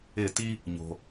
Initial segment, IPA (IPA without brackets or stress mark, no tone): ɪ